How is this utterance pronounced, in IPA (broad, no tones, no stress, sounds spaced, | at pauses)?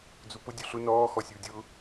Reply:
d͡z u p ʊ dʲ u ɬ ʊ n ɔː x ɔ sʲ u dʲ ʊ